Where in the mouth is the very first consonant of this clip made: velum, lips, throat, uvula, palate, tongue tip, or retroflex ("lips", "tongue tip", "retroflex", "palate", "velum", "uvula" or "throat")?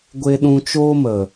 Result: velum